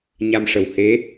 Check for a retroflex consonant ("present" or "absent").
present